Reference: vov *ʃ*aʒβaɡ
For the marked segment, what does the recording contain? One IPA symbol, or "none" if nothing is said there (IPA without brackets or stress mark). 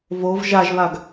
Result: ʒ